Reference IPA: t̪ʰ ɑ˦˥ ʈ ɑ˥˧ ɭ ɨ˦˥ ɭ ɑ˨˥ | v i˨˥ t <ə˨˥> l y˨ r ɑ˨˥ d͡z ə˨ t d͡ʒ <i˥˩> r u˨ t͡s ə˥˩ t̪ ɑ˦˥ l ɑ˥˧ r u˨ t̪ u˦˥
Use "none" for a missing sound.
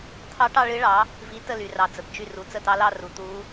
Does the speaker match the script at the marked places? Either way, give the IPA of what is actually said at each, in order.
ə˥˧, y˥˩

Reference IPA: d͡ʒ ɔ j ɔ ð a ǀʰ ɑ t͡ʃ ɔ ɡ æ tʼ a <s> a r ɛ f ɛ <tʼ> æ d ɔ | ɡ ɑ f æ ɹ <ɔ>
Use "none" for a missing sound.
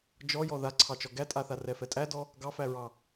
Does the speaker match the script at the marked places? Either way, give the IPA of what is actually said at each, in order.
θ, tʼ, ɑ

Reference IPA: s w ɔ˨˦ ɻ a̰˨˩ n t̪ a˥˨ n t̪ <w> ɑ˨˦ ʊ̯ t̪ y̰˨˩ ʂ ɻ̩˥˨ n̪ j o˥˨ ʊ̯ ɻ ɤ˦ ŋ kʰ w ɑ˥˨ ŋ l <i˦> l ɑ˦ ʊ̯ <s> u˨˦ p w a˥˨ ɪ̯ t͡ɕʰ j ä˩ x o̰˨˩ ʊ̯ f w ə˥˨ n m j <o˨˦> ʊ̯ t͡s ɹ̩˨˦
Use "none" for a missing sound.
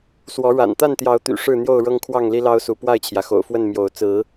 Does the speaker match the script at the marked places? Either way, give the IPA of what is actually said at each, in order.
j, i˦, s, o˨˦

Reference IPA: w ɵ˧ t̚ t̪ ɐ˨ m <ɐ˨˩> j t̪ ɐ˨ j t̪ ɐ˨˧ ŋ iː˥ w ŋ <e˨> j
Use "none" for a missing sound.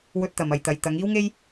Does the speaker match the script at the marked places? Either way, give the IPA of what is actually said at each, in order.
ɐ˨, e˥

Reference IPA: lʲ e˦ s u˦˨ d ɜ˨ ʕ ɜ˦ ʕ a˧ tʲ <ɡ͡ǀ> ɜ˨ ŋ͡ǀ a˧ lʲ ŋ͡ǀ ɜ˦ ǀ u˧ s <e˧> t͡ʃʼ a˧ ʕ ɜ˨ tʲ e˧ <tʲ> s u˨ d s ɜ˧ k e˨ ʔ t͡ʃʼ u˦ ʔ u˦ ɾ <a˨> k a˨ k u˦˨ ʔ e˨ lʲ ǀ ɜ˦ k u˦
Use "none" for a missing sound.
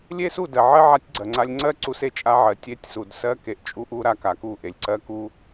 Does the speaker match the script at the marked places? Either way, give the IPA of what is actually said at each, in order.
ɡ͡ǀ, e˧, tʲ, a˧

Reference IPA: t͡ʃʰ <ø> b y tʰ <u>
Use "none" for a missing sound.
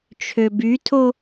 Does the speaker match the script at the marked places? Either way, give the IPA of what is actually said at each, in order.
ø, o

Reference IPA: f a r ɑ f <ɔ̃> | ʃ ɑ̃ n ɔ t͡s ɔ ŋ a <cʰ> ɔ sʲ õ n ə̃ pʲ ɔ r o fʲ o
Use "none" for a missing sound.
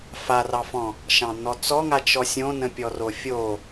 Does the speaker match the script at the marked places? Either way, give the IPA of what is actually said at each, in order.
ɔ̃, t͡ʃ

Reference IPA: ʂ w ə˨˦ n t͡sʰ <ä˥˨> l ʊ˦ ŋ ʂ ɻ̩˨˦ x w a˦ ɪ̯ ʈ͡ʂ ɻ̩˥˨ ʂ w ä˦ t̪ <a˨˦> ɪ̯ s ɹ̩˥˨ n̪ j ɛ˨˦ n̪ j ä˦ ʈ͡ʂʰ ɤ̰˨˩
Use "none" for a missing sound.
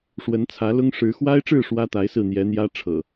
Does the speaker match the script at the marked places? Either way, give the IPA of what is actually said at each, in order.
ä˨˦, a˨˦

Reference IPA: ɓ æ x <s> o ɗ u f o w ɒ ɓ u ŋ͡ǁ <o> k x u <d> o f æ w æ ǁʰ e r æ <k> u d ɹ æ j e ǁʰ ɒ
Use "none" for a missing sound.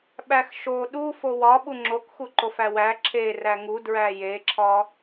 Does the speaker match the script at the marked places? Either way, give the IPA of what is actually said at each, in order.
ʃ, o, ǃ, ŋ

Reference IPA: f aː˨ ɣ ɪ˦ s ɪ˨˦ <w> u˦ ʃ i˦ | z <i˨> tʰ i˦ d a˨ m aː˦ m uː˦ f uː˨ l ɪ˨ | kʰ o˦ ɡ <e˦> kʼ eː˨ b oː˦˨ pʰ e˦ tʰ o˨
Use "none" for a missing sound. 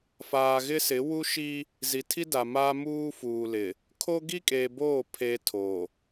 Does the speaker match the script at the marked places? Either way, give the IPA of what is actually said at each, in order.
w, i˨˦, i˦

